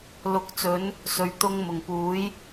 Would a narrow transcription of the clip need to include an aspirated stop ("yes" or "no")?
no